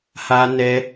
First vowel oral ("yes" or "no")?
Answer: yes